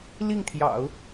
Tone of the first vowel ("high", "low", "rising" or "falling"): falling